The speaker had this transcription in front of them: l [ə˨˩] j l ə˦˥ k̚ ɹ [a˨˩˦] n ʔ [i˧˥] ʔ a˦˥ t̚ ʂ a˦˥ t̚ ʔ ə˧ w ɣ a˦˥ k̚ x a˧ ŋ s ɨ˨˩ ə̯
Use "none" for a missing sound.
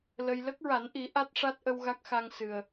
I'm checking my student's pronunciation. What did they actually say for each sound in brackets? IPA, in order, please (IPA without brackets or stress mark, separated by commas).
ə˧, a˨˩˦, i˨˩˦